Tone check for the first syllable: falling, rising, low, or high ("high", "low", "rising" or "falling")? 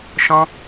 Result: high